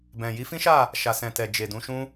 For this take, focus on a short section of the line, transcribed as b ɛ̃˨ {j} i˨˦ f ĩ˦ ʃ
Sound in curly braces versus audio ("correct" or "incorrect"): correct